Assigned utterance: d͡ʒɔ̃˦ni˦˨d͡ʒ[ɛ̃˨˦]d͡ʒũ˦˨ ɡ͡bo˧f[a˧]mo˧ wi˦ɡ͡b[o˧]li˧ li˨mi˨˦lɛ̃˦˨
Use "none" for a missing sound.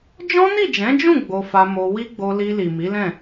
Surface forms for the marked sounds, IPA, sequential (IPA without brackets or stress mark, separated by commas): ɛ̃˨˦, a˧, o˧